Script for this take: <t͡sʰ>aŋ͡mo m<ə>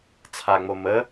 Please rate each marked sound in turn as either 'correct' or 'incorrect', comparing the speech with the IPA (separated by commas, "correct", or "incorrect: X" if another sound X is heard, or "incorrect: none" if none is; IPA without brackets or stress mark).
correct, correct